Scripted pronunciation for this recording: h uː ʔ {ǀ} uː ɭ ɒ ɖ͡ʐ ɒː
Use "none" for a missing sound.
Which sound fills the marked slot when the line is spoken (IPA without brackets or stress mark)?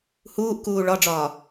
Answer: k